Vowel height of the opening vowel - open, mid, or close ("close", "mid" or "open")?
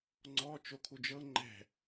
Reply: mid